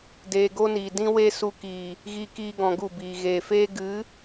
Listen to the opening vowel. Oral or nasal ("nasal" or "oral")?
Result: oral